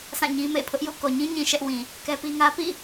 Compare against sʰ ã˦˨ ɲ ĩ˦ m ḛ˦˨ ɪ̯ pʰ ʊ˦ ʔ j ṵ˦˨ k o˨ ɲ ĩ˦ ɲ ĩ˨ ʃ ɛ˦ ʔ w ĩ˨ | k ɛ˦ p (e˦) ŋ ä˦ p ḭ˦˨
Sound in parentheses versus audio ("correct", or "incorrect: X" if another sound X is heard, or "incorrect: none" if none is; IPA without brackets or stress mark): incorrect: i˦